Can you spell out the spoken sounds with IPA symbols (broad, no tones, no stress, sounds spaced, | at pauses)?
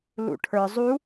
l ṵ ʈʰ ə˞ zˤ u